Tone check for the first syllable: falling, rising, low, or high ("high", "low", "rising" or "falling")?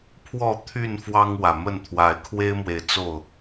falling